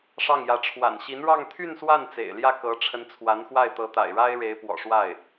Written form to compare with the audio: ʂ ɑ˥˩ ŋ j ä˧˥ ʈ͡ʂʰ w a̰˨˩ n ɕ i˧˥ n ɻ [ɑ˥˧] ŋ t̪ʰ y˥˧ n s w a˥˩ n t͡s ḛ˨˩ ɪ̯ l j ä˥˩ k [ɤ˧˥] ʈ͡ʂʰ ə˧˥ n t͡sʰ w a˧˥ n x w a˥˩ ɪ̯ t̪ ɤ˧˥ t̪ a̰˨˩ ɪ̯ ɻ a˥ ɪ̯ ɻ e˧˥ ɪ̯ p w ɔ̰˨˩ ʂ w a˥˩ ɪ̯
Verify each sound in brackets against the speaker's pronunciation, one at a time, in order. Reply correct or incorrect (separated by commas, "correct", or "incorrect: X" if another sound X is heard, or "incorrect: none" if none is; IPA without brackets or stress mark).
correct, correct